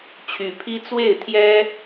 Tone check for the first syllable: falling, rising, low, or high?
rising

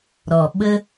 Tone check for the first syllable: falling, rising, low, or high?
low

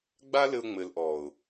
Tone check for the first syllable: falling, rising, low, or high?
high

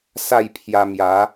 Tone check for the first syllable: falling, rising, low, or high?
falling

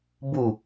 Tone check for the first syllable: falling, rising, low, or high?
falling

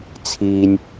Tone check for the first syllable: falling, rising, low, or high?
low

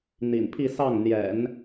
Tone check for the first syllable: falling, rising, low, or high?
low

